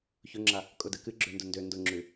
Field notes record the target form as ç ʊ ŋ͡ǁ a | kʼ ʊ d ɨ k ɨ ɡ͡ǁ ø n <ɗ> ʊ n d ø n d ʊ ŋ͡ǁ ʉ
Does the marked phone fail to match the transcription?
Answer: yes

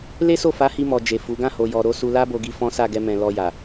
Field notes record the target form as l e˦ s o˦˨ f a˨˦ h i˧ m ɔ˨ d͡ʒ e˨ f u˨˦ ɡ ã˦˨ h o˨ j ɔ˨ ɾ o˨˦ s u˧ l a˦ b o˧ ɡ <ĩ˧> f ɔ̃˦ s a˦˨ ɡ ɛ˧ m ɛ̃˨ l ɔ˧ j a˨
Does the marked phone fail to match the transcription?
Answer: yes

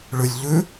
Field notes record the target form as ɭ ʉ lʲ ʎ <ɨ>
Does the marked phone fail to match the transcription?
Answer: yes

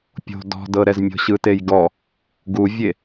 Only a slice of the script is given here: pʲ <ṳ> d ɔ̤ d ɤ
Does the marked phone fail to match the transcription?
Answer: yes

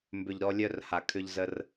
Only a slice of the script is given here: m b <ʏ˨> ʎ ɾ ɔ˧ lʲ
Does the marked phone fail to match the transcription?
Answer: no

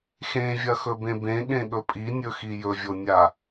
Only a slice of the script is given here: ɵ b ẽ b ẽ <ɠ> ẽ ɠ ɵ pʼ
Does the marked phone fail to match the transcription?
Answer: no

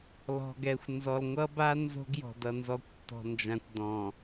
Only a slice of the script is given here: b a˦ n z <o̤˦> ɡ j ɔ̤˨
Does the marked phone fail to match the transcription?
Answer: no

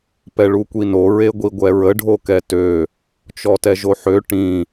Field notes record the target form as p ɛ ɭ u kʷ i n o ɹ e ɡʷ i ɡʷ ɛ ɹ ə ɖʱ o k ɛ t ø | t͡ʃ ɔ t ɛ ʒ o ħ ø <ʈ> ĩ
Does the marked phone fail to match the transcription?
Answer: no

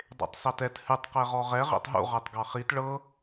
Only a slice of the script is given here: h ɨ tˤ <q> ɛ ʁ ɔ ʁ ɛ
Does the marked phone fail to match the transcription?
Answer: no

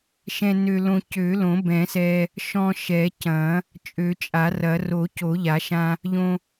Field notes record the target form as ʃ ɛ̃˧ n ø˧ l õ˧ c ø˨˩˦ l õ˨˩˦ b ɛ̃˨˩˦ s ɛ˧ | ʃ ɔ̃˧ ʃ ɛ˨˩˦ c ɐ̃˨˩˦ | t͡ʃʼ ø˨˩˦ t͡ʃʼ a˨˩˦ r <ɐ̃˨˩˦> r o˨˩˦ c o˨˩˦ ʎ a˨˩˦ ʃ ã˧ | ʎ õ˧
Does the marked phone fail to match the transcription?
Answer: yes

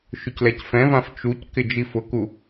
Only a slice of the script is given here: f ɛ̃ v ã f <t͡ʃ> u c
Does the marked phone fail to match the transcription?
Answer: no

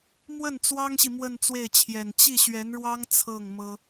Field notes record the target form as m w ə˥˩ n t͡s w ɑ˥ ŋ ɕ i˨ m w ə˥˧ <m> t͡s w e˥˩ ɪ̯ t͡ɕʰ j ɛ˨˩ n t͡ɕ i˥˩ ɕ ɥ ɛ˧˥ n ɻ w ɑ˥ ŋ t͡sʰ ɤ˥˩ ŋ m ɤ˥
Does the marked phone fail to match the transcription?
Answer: yes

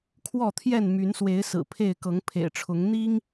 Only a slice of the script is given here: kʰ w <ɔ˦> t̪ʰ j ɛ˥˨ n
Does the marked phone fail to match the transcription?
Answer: yes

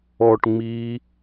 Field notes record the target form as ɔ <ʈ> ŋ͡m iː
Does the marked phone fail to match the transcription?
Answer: no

